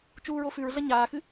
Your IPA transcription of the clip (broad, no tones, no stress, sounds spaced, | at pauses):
t͡ʃ uː ɹ o f ʉ ɹ ɮ ɐ ɲ aː x ɨ